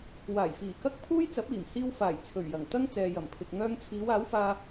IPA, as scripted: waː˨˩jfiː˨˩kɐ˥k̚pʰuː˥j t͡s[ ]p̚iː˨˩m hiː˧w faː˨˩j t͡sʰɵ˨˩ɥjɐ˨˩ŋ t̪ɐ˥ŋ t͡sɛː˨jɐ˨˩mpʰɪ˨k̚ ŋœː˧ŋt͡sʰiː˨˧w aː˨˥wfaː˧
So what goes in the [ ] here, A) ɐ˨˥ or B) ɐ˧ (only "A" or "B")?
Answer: A